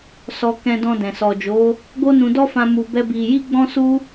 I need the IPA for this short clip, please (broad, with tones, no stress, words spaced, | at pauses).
sɔ˧kɛ̃˧dɔ̃˧dɛ̃˨ sɔ˨d͡ʒo˨˦ | ɡo˦nũ˧ dɔ˦fã˧ mu˧bɛ˦bi˧ ji˦ɡ͡bɔ̃˦su˦